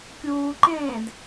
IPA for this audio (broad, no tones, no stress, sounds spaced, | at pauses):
kʲ uː ǃ ẽː d